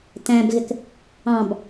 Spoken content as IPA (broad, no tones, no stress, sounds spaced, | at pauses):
t æ̃ b ɣ ɪ k | ɑ̃ b